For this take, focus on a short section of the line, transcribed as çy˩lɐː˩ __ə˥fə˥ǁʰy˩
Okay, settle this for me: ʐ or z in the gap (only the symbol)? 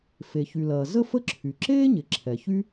z